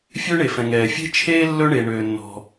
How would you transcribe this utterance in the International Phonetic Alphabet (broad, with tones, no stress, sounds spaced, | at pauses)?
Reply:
fʲ øː˥ ɳ e˩ f ɛ̃˩ ŋ ɛː˩ fʲ e̤˥ t͡ʃʰ eː˥ lː ɵ˥ ɳ e˩ ɳ øː˩ nː ɔ̤˩